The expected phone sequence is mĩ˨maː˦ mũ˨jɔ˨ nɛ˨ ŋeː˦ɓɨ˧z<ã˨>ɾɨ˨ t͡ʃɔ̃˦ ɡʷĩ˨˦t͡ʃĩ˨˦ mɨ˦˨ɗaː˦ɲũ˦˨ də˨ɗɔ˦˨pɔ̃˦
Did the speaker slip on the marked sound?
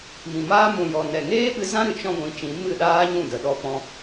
yes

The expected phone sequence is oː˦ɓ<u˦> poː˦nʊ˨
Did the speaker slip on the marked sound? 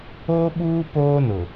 yes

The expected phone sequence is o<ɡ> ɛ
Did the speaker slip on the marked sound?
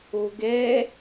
no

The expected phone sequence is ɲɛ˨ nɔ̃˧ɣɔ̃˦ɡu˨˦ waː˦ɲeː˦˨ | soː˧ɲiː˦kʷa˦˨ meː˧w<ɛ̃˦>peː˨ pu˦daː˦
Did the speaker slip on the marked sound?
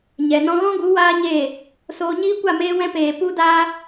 yes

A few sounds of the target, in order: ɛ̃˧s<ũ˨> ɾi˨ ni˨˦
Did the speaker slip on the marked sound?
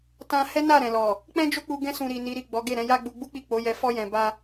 no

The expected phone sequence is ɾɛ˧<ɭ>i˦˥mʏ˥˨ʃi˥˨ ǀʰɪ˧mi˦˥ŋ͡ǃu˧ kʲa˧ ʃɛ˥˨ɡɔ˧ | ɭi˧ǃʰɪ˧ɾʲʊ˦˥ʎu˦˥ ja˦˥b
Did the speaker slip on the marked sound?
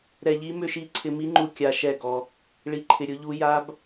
yes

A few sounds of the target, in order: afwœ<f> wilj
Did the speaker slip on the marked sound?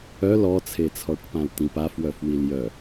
no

